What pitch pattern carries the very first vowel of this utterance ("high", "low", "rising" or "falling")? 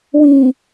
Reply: low